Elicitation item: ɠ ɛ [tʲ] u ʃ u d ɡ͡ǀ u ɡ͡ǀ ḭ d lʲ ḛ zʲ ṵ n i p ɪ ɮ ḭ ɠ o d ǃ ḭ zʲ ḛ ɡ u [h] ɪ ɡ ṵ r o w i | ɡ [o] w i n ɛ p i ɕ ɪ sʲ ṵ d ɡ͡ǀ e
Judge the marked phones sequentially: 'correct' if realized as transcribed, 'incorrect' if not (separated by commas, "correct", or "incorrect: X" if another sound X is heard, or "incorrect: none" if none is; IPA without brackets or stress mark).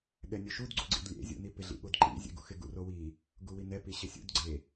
incorrect: nʲ, incorrect: x, incorrect: u